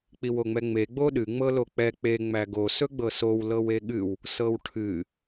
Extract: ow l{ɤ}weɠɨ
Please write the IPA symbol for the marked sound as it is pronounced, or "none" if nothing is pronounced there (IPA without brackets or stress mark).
ɤ